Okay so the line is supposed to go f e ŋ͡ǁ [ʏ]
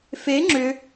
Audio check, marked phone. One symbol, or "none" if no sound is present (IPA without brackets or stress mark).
ʏ